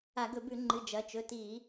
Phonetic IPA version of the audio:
a˧˩˧ ɡ ɵ˧˩˧ b ʉ˧˩˧ ŋ͡ǃ ɨ˩˧˩ d͡ʒ ɐ˩˧˩ t͡ʃ ɵ˩˧˩ t i˧˩˧

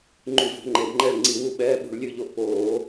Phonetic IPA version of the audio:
ŋ͡ǃ y˧˩˧ v o̤˩˧ ŋ͡ǃ e˩˧ b ŋ͡ǃ ɛ˦˨ ɭ ŋ͡ǀ i˧˩˧ w u˦˨ ɓ ɛː˧˥˧ ɓ ṳ˧˩˧ ɭ lʲ ʉ˦˨ ʎ o˦˨ ʔ p oː˧˩˧

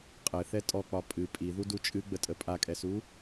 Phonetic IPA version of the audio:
qʼ ɘ θ ɛ tʼ ɔ k͡p ɒ pʼ ɨ pʼ i ð u d u t͡ʃʼ ɨ ɡ͡b ə tʼ ə pʼ a kʼ ɛ s u

